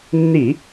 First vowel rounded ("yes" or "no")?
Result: no